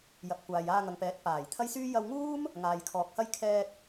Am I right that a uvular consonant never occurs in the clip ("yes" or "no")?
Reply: yes